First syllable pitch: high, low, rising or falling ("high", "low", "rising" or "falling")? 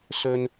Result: high